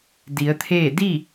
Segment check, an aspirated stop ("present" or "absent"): present